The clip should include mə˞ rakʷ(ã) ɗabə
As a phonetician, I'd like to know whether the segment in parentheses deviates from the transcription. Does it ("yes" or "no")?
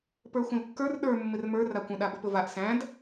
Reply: yes